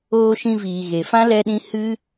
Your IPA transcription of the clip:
oː˧ ʃ ĩ˧ v iː˨ ɣ e˨ f ã˦ l ɛ˧ ɗ ĩ˧ h ɨ˦

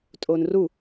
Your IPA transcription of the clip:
tʼ oː n r u

